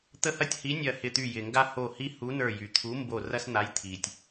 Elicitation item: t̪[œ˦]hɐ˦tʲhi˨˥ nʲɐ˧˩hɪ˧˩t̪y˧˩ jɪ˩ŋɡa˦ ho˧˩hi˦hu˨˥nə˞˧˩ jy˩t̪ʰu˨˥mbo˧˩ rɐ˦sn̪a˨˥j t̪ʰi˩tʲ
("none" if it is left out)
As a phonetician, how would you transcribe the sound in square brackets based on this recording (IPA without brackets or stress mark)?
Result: ə˦